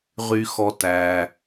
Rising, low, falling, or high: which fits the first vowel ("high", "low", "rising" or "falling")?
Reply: low